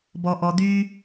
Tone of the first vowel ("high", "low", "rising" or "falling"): low